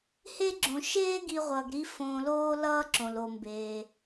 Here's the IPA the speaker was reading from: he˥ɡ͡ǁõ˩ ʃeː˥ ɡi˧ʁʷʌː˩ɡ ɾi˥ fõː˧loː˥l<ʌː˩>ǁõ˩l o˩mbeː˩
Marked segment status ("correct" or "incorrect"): incorrect